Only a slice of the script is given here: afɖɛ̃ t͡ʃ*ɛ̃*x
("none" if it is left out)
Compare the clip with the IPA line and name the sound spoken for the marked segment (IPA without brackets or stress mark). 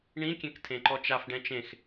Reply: ẽ